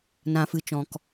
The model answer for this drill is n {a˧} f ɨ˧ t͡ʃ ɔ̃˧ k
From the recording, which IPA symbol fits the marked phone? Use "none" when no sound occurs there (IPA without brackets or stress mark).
ã˧